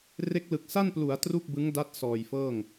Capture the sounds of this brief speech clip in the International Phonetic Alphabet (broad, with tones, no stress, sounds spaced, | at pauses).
r e˦˥ k̚ l ɯ˨˩ k̚ s a˥˩ n p l u˩˦ a̯ t r u˥˩ k̚ b ɯ˦˥ ŋ d a˦˥ t̚ s ɔː˨˩ j f ɤː˥˩ ŋ